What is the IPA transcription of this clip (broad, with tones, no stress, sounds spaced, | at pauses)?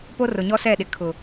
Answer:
p o˦ r ʊ˨ ɲ ɔ˦ s ɛ˦˨ ɗ ɪ˨ kʰ ʊ˨